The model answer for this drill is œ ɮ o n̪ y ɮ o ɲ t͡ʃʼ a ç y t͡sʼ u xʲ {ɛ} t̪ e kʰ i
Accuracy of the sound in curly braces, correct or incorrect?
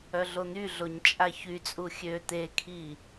incorrect